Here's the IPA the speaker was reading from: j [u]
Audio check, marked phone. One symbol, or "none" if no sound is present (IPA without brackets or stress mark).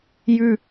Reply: ʉ